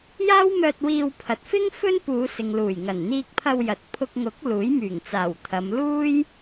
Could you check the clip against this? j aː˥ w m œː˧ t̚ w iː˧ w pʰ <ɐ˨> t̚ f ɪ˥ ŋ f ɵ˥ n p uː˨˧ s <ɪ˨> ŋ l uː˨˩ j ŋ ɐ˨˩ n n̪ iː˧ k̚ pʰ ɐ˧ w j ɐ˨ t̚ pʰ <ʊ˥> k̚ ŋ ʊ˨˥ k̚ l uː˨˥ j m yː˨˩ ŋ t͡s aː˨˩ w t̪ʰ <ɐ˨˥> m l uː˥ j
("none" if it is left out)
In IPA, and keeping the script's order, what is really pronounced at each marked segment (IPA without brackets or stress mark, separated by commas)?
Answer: ɐ˨, ɪ˨, ʊ˧, ɐ˨˧